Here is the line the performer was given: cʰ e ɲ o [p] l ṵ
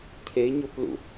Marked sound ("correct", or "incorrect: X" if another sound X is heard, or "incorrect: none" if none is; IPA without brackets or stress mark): correct